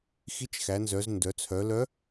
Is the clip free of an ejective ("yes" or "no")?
yes